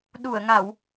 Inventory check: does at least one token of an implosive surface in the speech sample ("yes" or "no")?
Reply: yes